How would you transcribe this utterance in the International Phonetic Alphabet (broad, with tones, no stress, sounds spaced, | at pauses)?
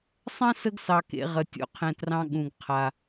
sˤ ɛ̃˥ s ə˦ ɡ s ɑ˨ k ḛ˨ ʁ ə˩ tʲ o̰˨ qʰ ɛ̃˩ t r ɑ̃˨ ɠ ũ˩ ɡ qʰ a˩